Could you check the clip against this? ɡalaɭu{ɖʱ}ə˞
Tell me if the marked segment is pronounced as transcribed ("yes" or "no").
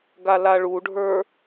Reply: yes